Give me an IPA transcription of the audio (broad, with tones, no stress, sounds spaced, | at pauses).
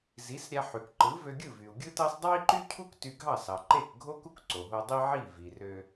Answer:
z i˩˥ s ɾʲ æ˧ ħ y˩ k ǃ ɯ˩˥ v ø˧ ɡʲ ɯ˥˩ v y˩ u̯ ɡʲ ɯ˥ t ɑ˥ s dˤ ɑ˥ i̯ ǃ y˥ cʰ u˥ k t y˧ ɡʱ ɑ˥˩ s ɑ˩ ǃ e˥˩ k ɡʱ o˥ k u˥ k ǀ o˩ ɦ o˧ dˤ i˥ ʕ i˥˩ v i˩ r ø˧